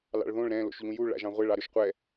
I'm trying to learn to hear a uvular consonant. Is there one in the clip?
yes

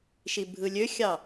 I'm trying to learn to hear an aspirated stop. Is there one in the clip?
no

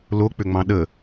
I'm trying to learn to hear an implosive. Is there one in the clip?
yes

